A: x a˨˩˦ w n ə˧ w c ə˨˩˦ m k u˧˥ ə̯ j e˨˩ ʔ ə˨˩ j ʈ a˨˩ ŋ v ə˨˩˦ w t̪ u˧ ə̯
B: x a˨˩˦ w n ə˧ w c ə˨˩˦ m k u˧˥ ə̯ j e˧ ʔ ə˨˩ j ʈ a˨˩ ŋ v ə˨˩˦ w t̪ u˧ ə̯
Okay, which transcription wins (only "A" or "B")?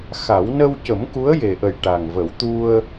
A